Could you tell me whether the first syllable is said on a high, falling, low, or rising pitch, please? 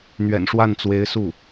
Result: low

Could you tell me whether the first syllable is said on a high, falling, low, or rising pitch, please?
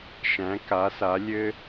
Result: rising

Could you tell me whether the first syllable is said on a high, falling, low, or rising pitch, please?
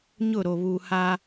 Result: falling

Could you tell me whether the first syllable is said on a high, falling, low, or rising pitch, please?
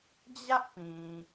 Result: high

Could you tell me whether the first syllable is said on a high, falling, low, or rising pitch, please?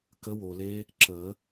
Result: rising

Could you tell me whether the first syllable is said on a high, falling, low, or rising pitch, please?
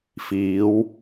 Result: rising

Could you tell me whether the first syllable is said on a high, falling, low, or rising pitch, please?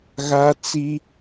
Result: high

